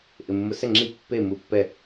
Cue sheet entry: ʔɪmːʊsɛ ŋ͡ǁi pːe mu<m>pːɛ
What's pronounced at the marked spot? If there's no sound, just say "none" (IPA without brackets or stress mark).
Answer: none